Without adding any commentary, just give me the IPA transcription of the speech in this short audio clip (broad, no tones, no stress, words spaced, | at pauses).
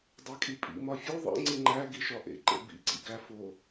dˤækʼipʼḭ mɒfʲo ðˤḛ ŋ͡ǀiŋ͡ǃæ ɡiʃɒʔḛ ǃḛbḭ ǀḭɡæ fo